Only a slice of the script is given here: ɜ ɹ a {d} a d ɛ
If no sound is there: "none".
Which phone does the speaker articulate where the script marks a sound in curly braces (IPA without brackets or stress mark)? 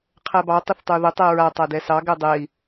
tˤ